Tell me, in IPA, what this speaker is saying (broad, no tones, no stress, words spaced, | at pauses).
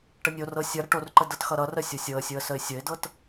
ʈənʲorɤ sʲʌ ɾʌʈorǃə dɤtxʌɾʌrə sʲosʲɤə̯sʲoə̯ səɪ̯sʲəɪ̯dɤt